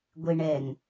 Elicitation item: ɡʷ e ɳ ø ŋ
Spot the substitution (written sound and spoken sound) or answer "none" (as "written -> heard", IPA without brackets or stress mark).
ø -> ɛ